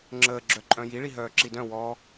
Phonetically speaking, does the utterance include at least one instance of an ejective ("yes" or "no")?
yes